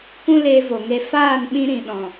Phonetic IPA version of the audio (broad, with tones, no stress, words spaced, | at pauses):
kʷũ˦le˧vo˨ŋe˧ faː˦˨nɓĩ˧ ɾĩ˨ɗɔ̃˨